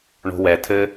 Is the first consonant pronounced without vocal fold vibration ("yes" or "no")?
no